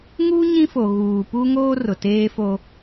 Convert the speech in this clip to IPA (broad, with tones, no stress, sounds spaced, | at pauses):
ŋ uː˦ ɲ ĩ˦ f o˨ ɣ uː˨ p u˦ ŋ oː˦ r ʊ˨ t eː˦ f o˦